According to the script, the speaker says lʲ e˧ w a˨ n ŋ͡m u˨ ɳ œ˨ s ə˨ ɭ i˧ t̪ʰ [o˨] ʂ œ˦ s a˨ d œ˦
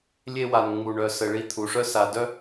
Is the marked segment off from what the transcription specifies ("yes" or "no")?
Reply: yes